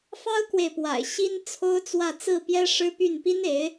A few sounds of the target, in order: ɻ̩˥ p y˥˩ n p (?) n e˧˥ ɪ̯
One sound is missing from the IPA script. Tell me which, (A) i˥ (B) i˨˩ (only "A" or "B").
A